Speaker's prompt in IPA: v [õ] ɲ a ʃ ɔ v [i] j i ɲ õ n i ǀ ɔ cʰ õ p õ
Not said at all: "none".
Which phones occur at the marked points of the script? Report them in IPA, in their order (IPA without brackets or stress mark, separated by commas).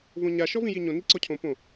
õ, ĩ